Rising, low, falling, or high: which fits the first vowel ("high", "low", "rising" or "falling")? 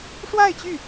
falling